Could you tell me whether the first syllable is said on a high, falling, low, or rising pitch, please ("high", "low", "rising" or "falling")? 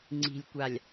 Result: low